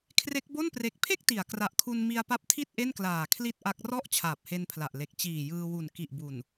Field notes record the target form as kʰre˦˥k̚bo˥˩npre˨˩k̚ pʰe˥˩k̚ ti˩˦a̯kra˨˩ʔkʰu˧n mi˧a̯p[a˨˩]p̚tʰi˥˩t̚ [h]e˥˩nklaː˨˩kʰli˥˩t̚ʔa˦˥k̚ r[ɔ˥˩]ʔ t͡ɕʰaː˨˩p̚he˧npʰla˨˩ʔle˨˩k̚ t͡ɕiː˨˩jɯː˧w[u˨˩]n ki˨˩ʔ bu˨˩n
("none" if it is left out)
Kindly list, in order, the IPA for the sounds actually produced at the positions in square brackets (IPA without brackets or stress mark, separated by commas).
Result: a˦˥, ʔ, ɔ˥˩, u˨˩